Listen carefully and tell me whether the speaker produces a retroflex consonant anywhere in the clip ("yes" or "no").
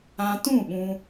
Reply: no